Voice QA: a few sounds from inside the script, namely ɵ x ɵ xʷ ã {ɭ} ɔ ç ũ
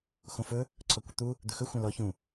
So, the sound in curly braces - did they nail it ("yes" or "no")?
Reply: no